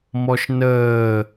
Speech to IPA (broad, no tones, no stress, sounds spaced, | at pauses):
m ɔ ʃ n əː